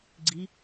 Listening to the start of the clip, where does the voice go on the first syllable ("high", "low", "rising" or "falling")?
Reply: rising